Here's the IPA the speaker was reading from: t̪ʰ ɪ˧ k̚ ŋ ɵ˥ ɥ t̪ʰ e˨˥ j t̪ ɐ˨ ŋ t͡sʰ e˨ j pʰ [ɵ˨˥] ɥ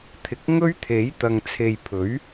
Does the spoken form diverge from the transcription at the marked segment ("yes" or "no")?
no